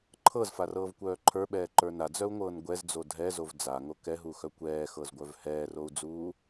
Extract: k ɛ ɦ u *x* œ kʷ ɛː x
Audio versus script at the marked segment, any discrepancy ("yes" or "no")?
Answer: no